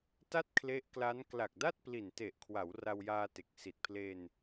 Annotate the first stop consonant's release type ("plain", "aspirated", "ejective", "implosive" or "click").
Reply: plain